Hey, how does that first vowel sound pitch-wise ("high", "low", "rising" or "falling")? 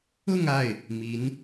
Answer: falling